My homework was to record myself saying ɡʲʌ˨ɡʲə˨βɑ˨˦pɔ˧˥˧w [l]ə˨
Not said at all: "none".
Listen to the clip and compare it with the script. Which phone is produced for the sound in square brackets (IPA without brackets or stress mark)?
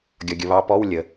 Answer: lʲ